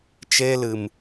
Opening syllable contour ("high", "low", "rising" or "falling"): high